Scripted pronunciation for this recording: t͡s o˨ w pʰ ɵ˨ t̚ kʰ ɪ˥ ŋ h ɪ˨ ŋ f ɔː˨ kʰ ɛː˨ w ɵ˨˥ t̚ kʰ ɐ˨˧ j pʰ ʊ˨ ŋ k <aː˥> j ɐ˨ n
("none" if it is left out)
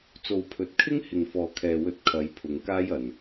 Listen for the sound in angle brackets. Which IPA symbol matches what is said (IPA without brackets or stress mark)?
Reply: aː˥